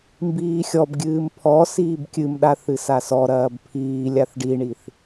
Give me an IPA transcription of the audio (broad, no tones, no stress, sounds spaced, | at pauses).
m b iː xʲ ɔ b ɡʲ ɨː m pʰ ɔ s iː b kʲ ɨ m ɗ a θ ɨ s a s ɔ ɾ ɐː b pʰ iː lʲ a θ ɖ i ɳ i θ